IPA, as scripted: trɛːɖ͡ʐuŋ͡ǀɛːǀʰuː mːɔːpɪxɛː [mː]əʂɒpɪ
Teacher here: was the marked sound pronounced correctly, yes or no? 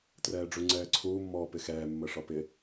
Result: yes